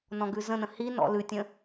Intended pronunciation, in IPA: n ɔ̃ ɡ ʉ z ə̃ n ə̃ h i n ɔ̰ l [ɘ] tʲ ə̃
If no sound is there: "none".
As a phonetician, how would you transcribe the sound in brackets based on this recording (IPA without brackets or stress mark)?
ʉ